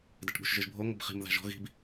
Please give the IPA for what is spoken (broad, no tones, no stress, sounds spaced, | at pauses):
d ɛ ʈ ɠ ṳ ʃ ʒ ɯ ʒ bʱ o ŋʷ ɯ b χ i̤ m ð a̤ ʒ ɔ̤ ɣ i̤ b